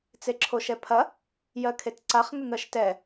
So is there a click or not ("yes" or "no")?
yes